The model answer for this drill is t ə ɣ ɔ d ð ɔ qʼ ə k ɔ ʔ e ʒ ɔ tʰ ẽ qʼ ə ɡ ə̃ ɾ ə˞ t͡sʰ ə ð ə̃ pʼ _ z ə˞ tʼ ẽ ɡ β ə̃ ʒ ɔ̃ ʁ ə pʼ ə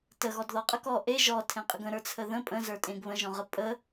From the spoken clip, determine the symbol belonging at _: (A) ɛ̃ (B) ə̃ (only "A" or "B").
B